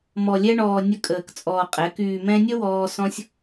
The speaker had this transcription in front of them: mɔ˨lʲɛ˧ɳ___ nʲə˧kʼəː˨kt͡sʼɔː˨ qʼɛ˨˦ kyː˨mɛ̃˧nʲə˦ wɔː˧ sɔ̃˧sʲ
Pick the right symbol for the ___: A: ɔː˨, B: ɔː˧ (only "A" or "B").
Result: A